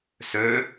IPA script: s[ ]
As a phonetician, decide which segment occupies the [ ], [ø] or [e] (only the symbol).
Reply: ø